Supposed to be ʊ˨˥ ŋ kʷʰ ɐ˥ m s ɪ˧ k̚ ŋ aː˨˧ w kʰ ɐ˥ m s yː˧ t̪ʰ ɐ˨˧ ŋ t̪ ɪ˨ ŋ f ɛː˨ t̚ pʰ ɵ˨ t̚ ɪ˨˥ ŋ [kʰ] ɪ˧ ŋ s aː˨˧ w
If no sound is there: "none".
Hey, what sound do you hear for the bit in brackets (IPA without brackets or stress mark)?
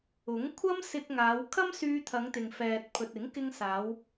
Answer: k